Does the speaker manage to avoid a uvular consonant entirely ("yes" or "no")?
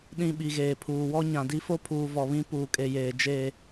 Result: yes